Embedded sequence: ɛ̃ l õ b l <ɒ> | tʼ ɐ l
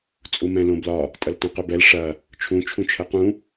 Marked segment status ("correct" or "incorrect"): correct